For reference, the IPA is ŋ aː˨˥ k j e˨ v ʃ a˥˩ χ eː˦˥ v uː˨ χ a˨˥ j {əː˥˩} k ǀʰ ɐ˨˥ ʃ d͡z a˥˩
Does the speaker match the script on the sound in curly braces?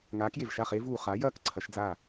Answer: no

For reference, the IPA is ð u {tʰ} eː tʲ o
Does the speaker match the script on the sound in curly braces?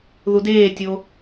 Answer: no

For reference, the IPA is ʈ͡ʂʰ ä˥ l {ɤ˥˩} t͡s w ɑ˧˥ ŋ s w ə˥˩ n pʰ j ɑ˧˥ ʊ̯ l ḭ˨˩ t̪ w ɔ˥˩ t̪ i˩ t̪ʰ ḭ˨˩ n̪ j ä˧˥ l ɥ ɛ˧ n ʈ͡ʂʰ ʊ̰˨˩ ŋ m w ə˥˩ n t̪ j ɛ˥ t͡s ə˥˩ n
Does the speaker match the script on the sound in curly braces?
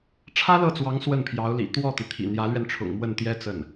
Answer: yes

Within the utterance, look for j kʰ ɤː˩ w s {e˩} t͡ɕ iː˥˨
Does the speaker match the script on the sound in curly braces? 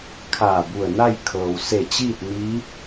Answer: no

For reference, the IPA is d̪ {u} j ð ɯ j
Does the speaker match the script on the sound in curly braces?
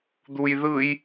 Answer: yes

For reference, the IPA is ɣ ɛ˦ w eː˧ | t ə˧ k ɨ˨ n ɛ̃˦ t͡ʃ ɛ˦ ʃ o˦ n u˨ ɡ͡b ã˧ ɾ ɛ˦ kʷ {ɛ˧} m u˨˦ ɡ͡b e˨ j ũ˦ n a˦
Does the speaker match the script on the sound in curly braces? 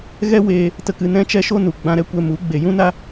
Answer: yes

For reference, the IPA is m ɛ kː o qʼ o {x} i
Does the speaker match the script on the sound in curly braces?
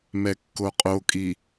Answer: no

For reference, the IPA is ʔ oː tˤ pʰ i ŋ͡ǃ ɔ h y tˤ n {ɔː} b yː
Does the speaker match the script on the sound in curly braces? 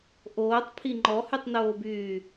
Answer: no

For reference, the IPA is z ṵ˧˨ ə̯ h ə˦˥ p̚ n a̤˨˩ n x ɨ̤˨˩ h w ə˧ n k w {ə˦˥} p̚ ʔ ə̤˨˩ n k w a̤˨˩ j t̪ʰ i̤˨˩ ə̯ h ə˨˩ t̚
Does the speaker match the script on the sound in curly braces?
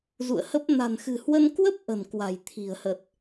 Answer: yes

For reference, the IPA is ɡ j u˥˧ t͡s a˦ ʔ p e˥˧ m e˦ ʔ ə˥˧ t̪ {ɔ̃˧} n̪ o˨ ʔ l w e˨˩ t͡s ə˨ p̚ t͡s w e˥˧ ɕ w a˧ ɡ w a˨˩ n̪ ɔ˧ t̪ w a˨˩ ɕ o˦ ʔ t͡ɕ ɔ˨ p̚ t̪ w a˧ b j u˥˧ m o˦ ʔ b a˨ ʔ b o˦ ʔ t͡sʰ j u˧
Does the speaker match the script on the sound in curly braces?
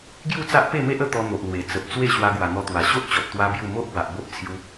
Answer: no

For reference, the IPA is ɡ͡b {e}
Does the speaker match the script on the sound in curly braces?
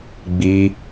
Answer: no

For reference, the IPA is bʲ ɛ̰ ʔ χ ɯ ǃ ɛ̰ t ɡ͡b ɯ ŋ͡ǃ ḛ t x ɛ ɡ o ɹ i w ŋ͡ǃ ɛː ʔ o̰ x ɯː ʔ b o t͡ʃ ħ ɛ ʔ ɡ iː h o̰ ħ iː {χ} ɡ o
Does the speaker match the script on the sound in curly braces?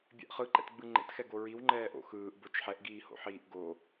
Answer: no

